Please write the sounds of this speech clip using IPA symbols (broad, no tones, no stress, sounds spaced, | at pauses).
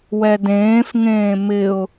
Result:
w ɛ d ẽː f ŋ ẽː m ɪ ʊ̯